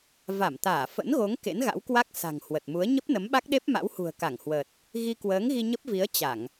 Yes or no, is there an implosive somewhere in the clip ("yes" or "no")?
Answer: yes